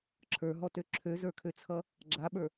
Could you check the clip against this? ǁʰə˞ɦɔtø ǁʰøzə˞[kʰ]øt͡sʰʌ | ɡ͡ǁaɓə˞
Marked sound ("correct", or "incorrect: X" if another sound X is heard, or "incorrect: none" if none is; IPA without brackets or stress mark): correct